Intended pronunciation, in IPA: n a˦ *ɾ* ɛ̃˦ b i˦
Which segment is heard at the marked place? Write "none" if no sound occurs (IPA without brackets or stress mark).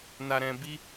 ɾ